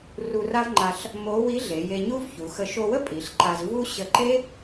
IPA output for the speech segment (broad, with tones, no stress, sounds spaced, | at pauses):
r u˧ r a˥ v ŋ͡ǃ a˧ ɬ | m o˧˥ w i˧˥ ɮ e˩˧ j e˧ ɲ u˥ v ç u˩˧ x ə˧ ʃ o˧ w ə˥ pʼ i˩˧ ɬ ǃ a˧ z v u˥ ɕ ə˧ ǃ e˥